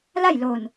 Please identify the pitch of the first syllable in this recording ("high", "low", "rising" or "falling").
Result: falling